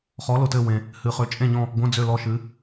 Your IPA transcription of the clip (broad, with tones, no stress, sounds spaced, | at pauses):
χ ɔ˨˦ l ʊ˨ t ɘ˦˨ w ẽ˨ | h ɨ˨ χ ø˨˦ t͡ʃʼ ẽ˦˨ ɲ ɔ̃˦˨ | ɡʷ ə̃˧˥˧ d͡z ø˦˨ l ɔ˦˨ ʃ ɨ˨˦